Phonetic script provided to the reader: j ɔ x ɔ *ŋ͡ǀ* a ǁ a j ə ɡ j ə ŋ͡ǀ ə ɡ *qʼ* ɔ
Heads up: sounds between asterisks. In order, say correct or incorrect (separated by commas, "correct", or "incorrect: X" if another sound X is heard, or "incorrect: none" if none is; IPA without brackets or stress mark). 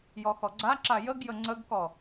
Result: incorrect: ɡ͡ǀ, incorrect: k